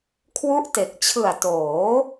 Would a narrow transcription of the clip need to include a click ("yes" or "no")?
no